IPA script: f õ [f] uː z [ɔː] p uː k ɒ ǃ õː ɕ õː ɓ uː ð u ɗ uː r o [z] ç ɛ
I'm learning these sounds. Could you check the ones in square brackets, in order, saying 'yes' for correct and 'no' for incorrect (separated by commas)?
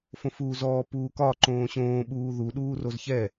yes, yes, yes